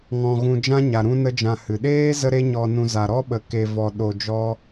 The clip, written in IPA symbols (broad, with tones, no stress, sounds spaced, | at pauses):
ŋ ɔ̃˧ ɣ ũ˧ d͡ʒ ã˦ ɲ a˨ ɾ ũ˦ n ə˦ d͡ʒ ã˧ h ɨ˨ ɗ eː˦ z ə˦ ɾ e˦ ɲ ɔ˧ n ũ˧ z a˨ ɾ ɔ˦ ɓ ə˨˦ k e˧ v ɔ˧ ɗ o˧ d͡ʒ ɔ˦